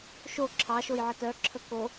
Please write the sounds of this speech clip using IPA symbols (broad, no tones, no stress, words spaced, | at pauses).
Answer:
ʃo ǁʰɑʃoj ʕətœǁʰə ko